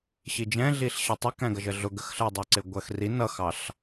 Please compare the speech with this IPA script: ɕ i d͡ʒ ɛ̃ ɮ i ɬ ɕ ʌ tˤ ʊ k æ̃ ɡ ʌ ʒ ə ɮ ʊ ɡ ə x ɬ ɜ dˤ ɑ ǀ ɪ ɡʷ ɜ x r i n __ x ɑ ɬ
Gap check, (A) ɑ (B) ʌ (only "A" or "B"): B